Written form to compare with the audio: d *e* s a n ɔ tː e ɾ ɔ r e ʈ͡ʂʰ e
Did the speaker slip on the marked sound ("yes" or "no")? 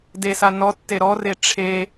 no